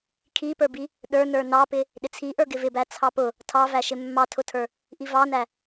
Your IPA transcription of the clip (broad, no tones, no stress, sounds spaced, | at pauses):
kʰ i p ə˞ b i | ɗ ə˞ n ə˞ n ɑ p ɪ | ɗ ɪ t͡sʰ i ʔ ə˞ ɡ ɪ v ɪ b æ t͡sʰ ɑ p ʊ | tʰ ɑ v æ ʃ ɪ mː ɑ tʰ ʊ tʰ ə˞ | ʔ i v ɑ n æ